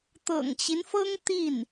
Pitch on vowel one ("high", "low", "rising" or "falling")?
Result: low